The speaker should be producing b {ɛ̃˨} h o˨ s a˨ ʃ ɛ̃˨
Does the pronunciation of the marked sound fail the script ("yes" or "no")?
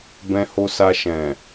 no